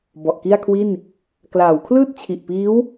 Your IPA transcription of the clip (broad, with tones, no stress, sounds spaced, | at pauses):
b ɔ˨˩ ʔ k i˥˩ a̯ kʰ w i˥˩ n | k l aː˩˦ w kʰ l ɯː˥˩ t̚ t͡ɕʰ i˨˩ ʔ p iː˦˥ w